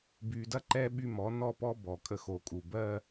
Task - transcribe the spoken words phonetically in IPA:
b yː˨ d ɐ˦ ǃ ɛː˦ ɓ y˦ m ɔ˨˦ n ɔ˦˨ p ɔ˦ b ɔ˨ kʼ ə˦ x o˨ kʼ u˨ b ɜː˦

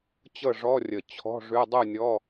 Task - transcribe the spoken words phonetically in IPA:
t͡ɕ ɤ˥˨ ʐ ɔ˧˥˧ rʲ ə˧˩ t͡ɕʰ ɔ̤˧˥˧ ʐ ʉ˧˥˧ dˤ u˥˨ nʲ ɔ˧˥˧

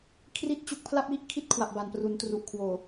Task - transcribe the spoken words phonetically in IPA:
kʰ r i˥˩ t̚ t͡ɕ u˦˥ k̚ pʰ l a˥˩ p̚ j i˥˩ ʔ kʰ i˥˩ t̚ kʰ w a˨˩ p̚ b a˨˩ n p r u˩˦ n t r u˨˩ ʔ kʰ w oː˨˩

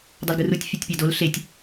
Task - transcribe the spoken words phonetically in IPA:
dˤ ɛ l ɡ ɯ r u tʲ fʲ a tʲ pʲ a d o l ɬ e tʲ

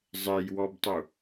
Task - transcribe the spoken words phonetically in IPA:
zˤ e j w ɔ b tˤ u

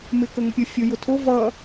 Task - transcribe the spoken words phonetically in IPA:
m ɪ k ə ŋ ʊ pʲ ʊ fʲ ʊ j ʊ tʰ ʊ v ʌ

